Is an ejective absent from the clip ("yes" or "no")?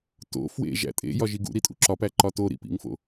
no